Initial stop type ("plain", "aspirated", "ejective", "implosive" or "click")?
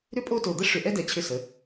ejective